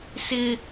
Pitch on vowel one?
high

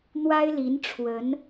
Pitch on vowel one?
high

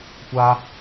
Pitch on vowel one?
high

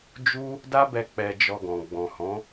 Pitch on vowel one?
high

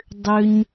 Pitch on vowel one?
high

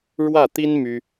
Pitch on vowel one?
falling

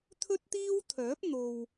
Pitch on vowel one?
high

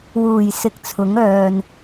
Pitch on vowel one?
low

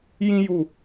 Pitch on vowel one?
high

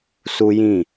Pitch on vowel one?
high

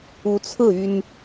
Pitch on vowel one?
rising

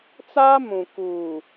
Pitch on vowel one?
high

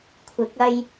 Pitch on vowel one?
rising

